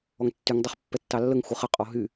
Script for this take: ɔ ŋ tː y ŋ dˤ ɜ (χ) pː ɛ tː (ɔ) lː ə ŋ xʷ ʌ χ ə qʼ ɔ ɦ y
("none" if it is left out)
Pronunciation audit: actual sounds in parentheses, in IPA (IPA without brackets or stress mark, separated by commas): χ, ɑ